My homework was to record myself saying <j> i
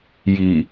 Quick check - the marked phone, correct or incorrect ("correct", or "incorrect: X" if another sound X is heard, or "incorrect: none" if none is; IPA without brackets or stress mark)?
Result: correct